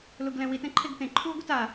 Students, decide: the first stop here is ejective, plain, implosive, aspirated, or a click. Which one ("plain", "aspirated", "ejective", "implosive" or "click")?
plain